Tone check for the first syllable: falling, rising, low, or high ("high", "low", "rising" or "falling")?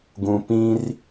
low